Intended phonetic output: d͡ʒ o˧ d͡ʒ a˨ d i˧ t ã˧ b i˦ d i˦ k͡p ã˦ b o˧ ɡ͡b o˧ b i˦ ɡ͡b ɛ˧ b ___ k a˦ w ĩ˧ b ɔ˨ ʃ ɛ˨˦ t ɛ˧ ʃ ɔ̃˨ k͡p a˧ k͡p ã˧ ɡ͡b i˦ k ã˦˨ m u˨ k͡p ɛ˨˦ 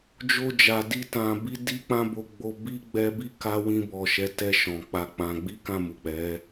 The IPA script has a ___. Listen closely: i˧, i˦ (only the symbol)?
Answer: i˦